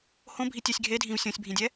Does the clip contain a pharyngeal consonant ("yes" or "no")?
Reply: no